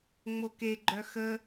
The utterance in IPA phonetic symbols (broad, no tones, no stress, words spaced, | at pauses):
ŋ͡mokeɡ͡ǃœ xə